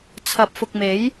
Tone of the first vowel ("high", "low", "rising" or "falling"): rising